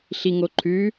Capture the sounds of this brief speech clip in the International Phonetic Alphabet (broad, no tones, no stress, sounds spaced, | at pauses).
ɬ i ŋ o ǃʰ ʉ